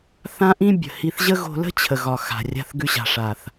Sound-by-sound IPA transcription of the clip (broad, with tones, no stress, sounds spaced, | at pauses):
θ ã˦ ʔ ĩ˦ bʲ ə̤˨ h i˧ θ ʑ ə˦ ɣ o̤˧ l ə̤˦ t͡ɕʰ ə˨ ɣ ɒ˨ x a̤˨ rʲ a̤˧ θ ɡ ʉ˧ ɕ a̤˨ ʂ a˨ θ